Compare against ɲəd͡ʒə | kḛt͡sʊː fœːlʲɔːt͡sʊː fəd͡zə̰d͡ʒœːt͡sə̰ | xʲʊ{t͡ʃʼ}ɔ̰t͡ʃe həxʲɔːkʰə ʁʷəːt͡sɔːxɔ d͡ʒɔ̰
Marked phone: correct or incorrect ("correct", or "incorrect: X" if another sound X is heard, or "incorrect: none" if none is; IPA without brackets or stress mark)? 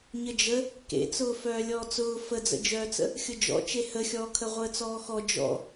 incorrect: d͡ʒ